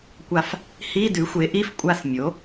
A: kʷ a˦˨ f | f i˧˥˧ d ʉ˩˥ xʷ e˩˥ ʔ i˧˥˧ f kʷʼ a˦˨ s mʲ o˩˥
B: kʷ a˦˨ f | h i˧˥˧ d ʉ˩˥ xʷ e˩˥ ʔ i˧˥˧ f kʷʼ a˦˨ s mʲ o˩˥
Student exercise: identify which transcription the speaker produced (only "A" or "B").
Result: B